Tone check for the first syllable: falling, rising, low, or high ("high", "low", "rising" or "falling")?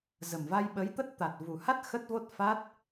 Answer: low